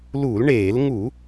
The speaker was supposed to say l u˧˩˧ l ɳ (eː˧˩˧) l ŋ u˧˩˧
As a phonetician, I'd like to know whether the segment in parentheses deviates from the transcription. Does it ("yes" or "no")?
no